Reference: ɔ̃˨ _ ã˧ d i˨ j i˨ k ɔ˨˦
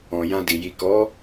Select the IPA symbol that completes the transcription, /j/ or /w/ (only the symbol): j